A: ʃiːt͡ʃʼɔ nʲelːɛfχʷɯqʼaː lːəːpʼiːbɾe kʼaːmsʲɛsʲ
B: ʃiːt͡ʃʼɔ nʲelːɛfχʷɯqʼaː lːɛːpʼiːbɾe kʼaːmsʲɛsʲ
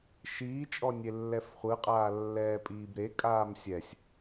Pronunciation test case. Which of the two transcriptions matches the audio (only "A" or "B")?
B